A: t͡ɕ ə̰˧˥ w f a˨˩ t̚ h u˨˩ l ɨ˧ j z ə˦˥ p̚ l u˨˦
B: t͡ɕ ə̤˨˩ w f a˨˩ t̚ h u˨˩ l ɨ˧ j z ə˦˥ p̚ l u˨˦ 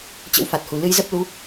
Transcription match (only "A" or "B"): A